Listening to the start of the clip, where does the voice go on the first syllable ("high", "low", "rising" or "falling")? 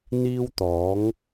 high